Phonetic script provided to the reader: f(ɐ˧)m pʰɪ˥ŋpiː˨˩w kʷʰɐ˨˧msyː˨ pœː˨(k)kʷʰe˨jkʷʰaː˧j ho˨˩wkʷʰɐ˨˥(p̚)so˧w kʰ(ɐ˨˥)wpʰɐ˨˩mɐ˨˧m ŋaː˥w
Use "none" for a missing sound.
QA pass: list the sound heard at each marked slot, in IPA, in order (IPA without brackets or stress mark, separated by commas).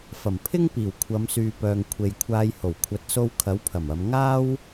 ɐ˨˩, ŋ, t̚, ɐ˨˥